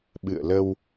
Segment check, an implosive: present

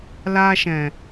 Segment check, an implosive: absent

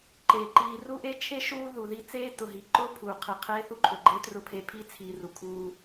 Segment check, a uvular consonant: present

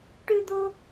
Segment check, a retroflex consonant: present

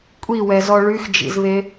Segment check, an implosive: absent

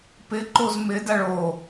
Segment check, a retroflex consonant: present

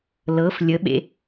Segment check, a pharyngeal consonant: absent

